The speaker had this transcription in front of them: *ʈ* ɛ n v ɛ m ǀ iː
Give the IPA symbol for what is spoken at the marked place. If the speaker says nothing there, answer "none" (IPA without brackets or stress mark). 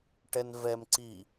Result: ʈ